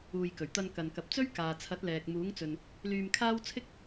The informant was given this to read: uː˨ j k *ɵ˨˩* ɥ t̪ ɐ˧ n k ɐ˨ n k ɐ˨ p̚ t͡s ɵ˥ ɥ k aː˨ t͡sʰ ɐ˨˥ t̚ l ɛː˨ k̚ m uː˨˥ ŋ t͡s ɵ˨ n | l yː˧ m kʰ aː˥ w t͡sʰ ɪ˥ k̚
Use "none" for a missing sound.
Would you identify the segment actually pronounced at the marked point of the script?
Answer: ɵ˨˩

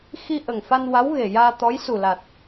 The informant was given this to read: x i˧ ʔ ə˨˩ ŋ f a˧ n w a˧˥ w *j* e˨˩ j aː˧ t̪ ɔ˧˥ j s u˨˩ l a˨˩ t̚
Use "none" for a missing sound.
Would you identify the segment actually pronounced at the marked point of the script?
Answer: ɣ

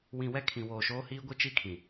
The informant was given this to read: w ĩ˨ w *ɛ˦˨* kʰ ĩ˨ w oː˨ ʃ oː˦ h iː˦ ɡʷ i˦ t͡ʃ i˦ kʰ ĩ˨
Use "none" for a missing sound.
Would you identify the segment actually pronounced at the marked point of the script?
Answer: ɛ˦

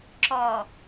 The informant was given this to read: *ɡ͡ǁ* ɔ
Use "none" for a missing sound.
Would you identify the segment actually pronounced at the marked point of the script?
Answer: ǁ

